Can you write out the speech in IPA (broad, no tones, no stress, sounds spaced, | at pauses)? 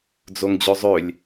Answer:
d͡z o ŋ d͡ʑ ø zˤ ø lʲ